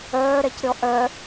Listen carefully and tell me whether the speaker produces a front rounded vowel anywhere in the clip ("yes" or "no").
yes